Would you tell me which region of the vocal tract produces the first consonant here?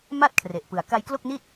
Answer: lips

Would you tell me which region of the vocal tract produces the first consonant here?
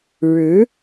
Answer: retroflex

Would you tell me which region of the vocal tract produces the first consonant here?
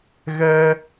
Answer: velum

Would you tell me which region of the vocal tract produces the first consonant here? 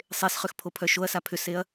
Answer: tongue tip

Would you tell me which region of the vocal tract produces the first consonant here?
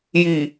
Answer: palate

